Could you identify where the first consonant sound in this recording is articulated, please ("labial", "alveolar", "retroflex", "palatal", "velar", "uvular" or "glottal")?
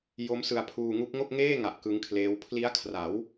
palatal